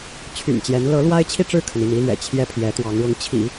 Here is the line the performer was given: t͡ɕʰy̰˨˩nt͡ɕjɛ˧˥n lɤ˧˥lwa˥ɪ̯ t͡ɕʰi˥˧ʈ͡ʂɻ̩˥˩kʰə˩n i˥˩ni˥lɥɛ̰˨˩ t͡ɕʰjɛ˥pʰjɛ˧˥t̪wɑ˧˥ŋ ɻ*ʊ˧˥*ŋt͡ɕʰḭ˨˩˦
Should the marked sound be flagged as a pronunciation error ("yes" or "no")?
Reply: no